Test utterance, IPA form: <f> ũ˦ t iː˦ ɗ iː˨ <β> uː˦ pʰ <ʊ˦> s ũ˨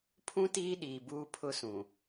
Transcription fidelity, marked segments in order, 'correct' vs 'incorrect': incorrect, incorrect, correct

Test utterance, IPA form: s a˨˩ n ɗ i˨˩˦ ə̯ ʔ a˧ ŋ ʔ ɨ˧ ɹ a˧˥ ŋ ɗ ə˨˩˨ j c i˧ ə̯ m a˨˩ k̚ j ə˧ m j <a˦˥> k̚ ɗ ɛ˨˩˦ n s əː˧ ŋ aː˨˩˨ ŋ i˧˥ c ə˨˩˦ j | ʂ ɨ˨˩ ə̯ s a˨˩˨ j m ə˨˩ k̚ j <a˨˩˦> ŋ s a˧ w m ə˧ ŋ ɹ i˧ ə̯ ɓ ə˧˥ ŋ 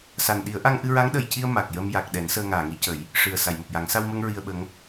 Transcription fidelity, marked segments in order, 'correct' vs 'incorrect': incorrect, correct

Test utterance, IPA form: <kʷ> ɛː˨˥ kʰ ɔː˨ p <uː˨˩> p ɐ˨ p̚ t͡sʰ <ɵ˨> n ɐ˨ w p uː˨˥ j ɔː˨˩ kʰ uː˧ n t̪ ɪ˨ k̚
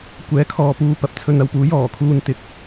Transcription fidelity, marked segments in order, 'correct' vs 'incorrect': correct, incorrect, correct

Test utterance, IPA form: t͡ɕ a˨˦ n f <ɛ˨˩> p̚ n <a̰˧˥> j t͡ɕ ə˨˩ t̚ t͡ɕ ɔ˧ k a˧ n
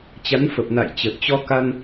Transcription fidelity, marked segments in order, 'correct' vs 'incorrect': incorrect, incorrect

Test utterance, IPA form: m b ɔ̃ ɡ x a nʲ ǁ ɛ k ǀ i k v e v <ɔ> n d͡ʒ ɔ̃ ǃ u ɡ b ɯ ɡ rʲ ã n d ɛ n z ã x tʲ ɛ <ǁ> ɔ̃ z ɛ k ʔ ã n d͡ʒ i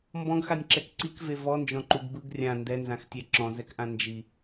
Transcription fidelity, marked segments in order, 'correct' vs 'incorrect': correct, correct

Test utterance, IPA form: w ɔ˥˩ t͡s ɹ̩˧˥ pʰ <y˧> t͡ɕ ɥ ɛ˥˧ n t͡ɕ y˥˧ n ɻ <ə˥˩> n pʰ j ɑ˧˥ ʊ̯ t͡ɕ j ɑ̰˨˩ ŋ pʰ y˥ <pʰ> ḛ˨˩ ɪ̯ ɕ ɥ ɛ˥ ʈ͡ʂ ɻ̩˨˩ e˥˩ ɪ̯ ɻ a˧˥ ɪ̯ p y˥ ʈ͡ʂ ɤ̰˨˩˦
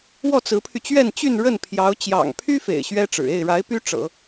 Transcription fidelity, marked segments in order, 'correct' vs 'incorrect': correct, correct, incorrect

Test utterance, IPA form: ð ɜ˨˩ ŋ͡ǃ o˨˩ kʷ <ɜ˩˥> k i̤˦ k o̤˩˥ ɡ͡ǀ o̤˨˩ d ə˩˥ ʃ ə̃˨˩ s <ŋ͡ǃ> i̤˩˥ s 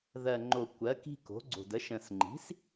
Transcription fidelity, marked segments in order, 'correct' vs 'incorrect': correct, correct

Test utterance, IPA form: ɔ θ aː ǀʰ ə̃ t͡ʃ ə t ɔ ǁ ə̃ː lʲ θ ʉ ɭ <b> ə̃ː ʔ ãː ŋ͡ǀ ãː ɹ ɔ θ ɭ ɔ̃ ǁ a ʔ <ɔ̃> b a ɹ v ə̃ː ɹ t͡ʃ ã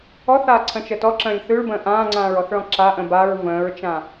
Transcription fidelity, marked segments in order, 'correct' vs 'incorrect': correct, incorrect

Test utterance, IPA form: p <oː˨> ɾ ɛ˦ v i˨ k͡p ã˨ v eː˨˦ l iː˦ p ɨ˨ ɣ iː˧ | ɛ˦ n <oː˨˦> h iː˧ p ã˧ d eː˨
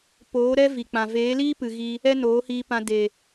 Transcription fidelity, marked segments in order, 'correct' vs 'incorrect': incorrect, correct

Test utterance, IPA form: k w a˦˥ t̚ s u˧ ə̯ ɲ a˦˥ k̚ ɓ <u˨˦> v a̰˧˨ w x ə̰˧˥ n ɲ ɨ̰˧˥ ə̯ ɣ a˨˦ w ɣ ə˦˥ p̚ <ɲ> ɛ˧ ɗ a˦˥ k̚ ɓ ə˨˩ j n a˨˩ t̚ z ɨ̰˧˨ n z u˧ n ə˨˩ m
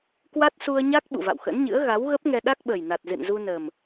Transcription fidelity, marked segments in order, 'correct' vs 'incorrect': incorrect, incorrect

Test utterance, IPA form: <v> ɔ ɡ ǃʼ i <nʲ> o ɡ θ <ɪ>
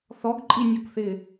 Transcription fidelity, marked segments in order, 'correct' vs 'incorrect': incorrect, correct, correct

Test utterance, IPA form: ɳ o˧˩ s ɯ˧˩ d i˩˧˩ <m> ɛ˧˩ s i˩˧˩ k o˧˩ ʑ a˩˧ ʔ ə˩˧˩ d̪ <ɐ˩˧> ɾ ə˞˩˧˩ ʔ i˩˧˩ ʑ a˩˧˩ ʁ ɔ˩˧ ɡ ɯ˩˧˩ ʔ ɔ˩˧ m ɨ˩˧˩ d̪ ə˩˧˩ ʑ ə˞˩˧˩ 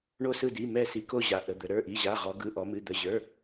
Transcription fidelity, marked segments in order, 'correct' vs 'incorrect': correct, incorrect

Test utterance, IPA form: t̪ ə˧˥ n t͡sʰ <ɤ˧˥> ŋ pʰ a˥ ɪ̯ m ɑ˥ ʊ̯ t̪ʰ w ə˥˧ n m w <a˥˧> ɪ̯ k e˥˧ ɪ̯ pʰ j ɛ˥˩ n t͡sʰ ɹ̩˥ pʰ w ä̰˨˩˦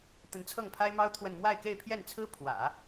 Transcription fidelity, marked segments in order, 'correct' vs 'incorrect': incorrect, correct

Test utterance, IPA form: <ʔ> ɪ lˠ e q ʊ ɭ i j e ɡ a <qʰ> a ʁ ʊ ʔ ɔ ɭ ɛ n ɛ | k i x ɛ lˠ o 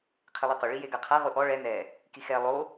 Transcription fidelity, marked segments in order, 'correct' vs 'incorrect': incorrect, correct

